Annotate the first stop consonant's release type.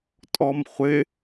ejective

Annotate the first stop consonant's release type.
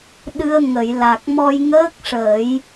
implosive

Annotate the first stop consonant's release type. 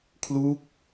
aspirated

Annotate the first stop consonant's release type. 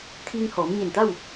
aspirated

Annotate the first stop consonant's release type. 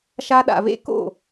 implosive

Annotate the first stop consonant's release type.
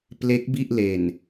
plain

